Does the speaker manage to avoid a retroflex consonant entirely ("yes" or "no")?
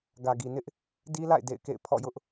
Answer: yes